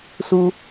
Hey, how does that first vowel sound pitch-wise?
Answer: low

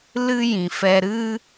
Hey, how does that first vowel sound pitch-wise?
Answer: high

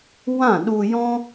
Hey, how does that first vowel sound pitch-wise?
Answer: falling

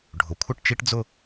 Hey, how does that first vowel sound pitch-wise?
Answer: rising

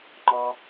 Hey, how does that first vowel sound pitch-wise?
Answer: low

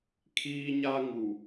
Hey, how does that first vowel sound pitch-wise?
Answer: high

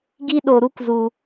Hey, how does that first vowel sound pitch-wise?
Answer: high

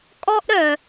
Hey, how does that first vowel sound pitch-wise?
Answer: high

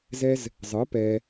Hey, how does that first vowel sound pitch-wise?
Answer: high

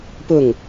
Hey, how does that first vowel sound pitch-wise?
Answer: falling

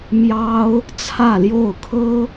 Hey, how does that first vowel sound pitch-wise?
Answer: high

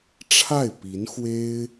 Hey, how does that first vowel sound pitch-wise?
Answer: falling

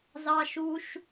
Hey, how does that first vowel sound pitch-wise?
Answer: high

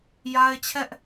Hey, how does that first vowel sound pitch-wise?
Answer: high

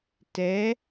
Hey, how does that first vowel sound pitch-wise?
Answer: rising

